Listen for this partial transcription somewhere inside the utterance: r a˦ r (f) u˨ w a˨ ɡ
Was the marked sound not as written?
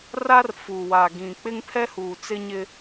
no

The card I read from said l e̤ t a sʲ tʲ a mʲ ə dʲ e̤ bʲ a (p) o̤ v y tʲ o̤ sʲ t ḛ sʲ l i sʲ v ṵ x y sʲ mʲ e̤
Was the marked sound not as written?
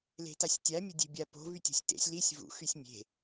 no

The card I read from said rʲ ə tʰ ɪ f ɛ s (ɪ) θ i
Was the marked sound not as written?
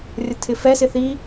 no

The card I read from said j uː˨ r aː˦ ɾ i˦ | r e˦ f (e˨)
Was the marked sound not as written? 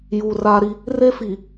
yes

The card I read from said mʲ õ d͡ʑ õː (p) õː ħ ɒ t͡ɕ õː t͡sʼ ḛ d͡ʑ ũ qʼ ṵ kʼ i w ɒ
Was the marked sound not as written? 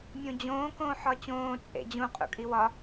yes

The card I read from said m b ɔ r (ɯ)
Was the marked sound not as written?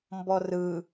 no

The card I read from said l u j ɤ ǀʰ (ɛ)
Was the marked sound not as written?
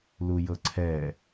no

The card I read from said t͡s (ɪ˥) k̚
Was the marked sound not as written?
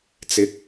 yes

